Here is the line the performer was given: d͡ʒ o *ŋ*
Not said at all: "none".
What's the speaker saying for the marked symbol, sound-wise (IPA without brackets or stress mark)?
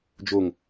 ŋ